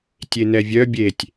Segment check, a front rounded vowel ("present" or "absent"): present